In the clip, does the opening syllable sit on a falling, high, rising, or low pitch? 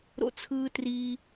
high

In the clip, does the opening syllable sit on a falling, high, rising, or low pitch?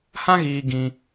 high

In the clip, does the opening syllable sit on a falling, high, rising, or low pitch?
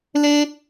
high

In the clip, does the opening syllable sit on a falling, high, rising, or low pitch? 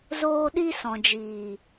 high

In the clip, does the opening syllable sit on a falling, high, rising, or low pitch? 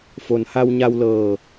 low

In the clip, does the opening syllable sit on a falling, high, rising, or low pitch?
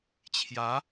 rising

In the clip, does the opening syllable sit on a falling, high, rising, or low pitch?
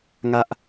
high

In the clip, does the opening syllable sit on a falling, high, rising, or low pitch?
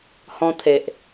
high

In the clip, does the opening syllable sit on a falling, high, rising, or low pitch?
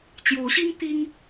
rising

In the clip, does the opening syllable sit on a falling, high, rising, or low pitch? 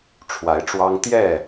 rising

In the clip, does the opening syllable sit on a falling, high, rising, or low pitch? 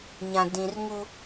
low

